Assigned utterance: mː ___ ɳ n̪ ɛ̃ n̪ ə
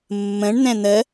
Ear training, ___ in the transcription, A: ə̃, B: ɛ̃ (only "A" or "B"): A